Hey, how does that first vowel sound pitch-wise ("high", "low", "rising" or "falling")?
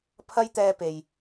high